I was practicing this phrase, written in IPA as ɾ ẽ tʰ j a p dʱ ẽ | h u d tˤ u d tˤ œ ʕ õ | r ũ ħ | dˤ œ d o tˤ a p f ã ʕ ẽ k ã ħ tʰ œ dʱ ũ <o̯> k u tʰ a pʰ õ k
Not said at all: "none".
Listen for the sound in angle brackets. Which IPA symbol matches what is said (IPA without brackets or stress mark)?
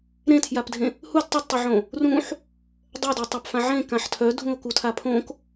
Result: o̯